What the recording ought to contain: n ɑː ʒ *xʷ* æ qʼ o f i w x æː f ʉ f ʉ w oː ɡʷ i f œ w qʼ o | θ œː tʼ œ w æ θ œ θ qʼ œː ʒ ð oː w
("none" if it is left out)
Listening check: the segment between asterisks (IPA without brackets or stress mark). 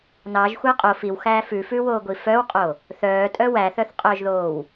xʷ